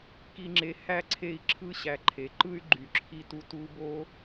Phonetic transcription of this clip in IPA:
ki˨ŋ͡ǁe˨ hæ˥ǀʰe˦i̯ ǁʰɯ˦ɕæ˨ǃʰe˩ ǃɯ˦y̯ ɡ͡ǃy˨ǁʰi˦tu˦ tu˦bo˥

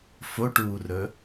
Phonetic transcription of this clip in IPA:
foʈuːrɵ

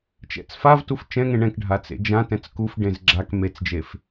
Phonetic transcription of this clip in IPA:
t͡ʃɛ̰t͡sfavtuf t͡ʃɛ̃ŋẽ ɳɛ̃kɖʱa t͡sḛd͡ʒãtɛ̃t͡s kufɖẽz ɡ͡ǁak met͡sd͡ʒef

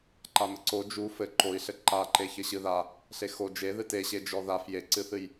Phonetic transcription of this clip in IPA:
ǃamɘǀo d͡ʒu fɘ ǃoi̯ɬɘ ǃaǃe çɘɕɨða | ɬexo d͡ʒe ðɨteɕe d͡ʒɔðaf jeǀɨθɨj

